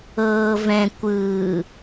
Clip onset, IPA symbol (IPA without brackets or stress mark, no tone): ɤː